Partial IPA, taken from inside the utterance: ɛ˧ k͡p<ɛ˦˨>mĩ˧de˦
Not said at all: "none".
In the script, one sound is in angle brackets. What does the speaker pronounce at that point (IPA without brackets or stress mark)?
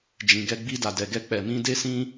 ɛ˨